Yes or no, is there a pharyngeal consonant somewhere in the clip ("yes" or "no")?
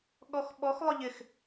no